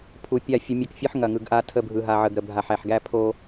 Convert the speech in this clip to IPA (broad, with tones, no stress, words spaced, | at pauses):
pʰu˨pʲa˦˨ fʲə˦mʲə˦kfʲɯ˦ħ ŋɐ˨ŋɯ˨ɡʔa˦ tʰə˦˨bʱɯ˨ɦa˨ ʕə˨ɡɾə˨ bʱa˨ħæ˨ħɡæ˦ pʰo˦